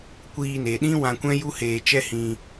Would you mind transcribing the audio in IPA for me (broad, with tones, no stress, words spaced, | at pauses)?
kʷiː˧ne˨ɗĩ˦ wã˧kʷɛ̃˦ju˦ heː˧t͡ʃɛ˦hĩ˧